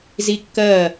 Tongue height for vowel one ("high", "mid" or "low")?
high